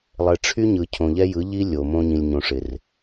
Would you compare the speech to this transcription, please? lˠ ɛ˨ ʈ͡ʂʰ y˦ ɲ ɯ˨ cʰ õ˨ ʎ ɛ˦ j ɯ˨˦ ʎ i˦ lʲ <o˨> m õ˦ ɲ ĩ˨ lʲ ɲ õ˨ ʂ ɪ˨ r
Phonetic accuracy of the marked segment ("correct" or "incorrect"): correct